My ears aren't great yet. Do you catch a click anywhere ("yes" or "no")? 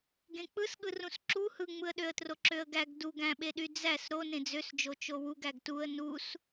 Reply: yes